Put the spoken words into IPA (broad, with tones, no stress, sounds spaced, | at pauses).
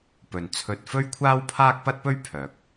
p ɵ˨ n t͡sʰ ɵ˧ t̚ f ɵ˥ ɥ kʷʰ aː˥ w pʰ aː˥ k̚ p ɐ˥ t̚ p ɵ˥ ɥ pʰ œː˨˥ k̚